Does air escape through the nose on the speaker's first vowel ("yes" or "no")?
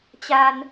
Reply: no